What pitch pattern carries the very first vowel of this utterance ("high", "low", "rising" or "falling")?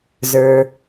low